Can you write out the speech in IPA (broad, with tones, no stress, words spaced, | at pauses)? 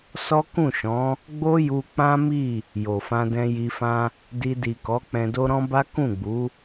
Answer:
sɔ˦ kũ˦˨ʃɔ̃˨˦ | ɡ͡bo˦ju˧ k͡pã˦mi˦˨ | jo˨fã˧dɛ̃˧ ji˧fã˦ | di˧di˨kɔ˨˦ k͡pɛ̃˧do˦ ɾɔ̃˦ba˦ kũ˦˨ɡ͡bu˨˦